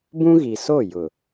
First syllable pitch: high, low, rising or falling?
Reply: high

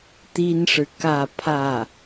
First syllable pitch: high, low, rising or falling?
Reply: high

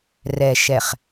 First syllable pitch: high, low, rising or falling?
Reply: low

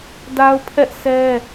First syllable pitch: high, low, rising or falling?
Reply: high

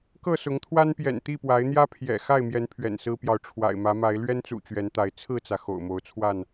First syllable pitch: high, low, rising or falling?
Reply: falling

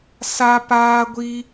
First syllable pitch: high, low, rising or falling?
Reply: high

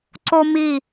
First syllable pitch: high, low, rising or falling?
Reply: high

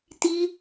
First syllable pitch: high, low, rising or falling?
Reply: high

